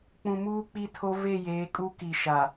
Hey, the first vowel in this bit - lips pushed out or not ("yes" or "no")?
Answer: yes